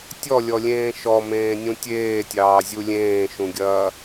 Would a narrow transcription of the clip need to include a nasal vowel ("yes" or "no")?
yes